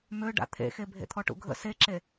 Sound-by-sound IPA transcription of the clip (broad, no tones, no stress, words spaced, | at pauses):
mø ɖa̰t̪ʰḛxe bʱḛt̪ʰɔʈṵɡʱə̰ seǁe